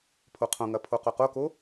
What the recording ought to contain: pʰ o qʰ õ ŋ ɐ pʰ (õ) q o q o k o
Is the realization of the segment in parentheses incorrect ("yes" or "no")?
yes